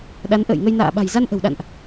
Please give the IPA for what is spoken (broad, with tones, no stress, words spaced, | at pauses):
ɗa˨˦nʔə̰ː˧˨jŋə˧jna̰ː˧˨ ɓa̤˨˩jza˧nʔə̤˨˩wɗa̰˧˨nʔ